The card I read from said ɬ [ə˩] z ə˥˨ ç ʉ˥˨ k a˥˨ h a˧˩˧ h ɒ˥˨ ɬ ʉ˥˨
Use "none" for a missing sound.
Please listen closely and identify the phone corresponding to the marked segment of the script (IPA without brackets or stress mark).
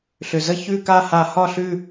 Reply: ʏ˩